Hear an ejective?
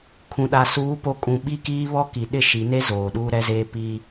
yes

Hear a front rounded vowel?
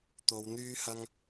yes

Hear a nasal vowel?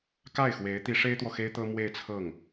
no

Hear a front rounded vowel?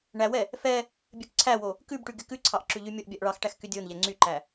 yes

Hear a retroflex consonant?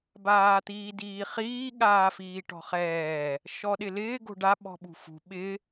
yes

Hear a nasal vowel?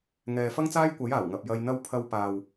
no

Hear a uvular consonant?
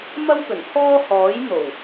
no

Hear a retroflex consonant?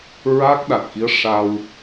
yes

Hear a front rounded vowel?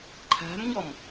no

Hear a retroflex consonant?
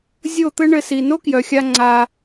yes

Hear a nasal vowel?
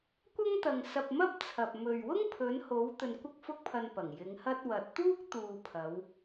no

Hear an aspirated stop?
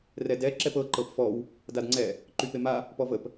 no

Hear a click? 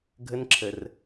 yes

